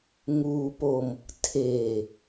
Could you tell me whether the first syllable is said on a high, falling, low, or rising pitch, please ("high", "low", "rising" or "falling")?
low